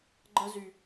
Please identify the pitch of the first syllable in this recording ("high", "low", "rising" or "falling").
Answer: high